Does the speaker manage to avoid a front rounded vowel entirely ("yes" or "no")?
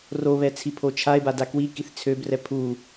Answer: no